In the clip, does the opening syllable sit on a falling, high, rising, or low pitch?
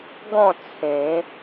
falling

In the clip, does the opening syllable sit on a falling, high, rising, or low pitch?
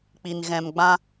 low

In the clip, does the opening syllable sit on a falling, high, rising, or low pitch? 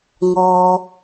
low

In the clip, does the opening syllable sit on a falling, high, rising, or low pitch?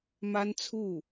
high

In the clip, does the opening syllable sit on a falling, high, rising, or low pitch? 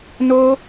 high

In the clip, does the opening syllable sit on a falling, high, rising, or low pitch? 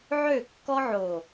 falling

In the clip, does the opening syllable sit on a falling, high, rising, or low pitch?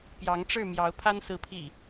rising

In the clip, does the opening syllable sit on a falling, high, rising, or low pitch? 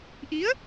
rising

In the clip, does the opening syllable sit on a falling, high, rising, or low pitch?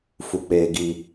low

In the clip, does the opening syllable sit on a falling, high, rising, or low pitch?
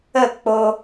falling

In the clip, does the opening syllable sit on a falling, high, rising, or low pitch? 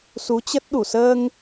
rising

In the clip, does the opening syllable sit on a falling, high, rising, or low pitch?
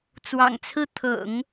low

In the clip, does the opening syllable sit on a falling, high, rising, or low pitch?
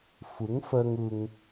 rising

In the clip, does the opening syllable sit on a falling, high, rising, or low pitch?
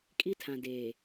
high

